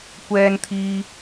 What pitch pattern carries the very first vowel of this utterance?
high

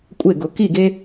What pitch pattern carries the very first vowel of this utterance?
falling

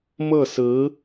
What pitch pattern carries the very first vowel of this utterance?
falling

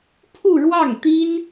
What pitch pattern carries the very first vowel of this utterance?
falling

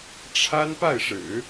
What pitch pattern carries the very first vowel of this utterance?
high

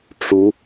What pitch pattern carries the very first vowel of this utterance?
rising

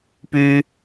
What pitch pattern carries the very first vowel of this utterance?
high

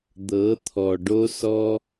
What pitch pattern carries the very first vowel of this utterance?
rising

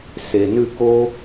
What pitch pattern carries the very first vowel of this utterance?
low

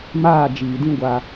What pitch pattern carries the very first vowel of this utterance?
falling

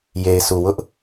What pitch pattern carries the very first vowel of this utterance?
low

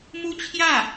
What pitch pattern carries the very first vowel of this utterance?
high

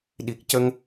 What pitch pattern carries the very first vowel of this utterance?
low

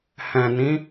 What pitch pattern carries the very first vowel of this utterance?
low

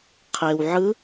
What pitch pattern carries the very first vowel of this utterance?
low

